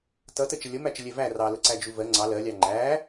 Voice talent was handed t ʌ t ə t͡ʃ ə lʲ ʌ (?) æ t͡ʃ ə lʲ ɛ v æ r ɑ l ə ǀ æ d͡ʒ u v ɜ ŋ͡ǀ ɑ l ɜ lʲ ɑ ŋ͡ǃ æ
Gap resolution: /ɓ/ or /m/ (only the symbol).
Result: m